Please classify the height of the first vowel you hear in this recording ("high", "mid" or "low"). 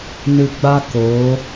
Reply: high